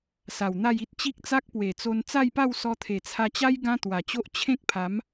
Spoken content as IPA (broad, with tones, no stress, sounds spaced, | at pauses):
s a˨˩ w n̪ a˥˧ j i˦ t̚ t͡ɕ i˦ k̚ t͡s a˦ k̚ p w e˨˩ t͡s o˧ n t͡s a˥˧ j p a˥˧ w s ɔ˧ t̪ʰ e˨˩ t͡sʰ a˧ t͡ɕ a˦ j ɡ ã˦ t̪ w a˨˩ t͡ɕ o˦ ʔ t͡ɕʰ ẽ˦ k̚ pʰ a˨˦ m